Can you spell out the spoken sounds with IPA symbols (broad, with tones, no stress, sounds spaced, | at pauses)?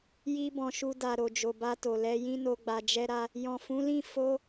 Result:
j i˧ b ɔ̃˨ ʃ u˧ d a˨ ɾ o˨ d͡ʒ o˨ b a˧ t o˨ l ɛ˧ j ĩ˦ n o˧ ɡ͡b a˧ d͡ʒ ɛ˦ ɾ a˦ | j ɔ̃˨ f ũ˨˦ l ĩ˦˨ f o˧